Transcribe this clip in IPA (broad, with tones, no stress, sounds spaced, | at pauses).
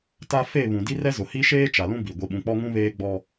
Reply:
t a˦ f e˦˨ β ũ˨ d i˦ r ɛ˦ z ʊ˨ h i˦ ʃ eː˦ t͡ʃ a˨ l ũ˦ b i˨ ɡʷ i˨ ɓ ũ˨ k͡p ɔ˦ ŋ ũ˦ β eː˦ ɡ͡b ɔ˦